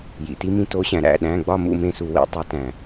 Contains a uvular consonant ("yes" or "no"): no